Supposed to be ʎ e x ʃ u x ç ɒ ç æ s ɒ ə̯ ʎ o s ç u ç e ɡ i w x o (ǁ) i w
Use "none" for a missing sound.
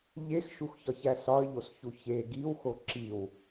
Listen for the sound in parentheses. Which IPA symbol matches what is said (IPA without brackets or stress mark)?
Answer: ǁ